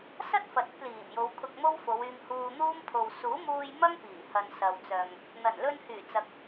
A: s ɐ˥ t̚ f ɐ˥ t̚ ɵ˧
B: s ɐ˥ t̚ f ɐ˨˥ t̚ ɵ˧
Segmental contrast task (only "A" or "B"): B